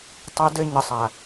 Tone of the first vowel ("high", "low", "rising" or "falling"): high